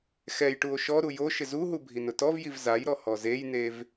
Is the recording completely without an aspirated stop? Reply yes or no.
yes